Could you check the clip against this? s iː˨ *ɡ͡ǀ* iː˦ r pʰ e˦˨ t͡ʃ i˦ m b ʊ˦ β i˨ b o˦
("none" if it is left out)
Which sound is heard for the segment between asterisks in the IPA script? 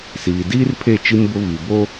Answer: d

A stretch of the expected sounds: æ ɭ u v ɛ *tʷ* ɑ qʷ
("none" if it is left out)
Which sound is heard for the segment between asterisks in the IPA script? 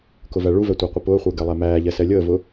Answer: tʷ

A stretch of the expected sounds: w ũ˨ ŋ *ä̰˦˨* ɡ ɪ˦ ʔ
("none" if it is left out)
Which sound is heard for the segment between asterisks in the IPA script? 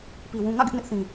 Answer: ä̰˦˨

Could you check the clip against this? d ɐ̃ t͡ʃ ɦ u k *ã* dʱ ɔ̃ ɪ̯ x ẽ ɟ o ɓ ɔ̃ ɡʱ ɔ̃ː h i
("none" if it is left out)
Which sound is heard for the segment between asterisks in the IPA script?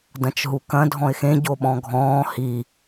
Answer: ɐ̃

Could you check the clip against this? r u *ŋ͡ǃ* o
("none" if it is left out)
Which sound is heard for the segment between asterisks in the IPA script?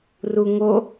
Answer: ŋ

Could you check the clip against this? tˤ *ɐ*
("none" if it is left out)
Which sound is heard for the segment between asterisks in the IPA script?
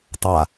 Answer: a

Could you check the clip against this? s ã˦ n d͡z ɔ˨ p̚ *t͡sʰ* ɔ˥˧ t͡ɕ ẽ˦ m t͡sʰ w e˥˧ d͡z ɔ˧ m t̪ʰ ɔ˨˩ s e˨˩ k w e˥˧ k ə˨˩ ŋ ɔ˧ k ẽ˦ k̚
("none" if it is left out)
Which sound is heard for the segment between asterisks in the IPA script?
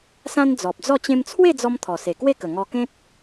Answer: d͡z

